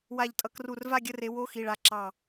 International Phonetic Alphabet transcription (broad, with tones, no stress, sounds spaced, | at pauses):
w a˧˩ ʎ tʼ ʌ˨˦ k r u˧˩ r v a˥˧ ɡʲ ə˧˥˧ r e˨˦ w o˧˥˧ x i˩˧˩ ɭ a˨˦ ǁ ɑ˧˩